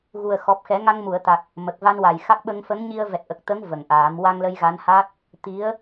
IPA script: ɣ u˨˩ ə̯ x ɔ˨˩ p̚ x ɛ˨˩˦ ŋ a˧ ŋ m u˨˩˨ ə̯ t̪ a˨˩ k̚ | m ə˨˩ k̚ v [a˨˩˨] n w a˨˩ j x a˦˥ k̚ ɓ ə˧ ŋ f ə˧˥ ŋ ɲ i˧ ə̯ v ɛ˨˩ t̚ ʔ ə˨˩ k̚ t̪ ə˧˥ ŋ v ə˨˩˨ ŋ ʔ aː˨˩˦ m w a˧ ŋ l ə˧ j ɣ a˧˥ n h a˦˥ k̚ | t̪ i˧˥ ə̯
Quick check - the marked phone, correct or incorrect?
incorrect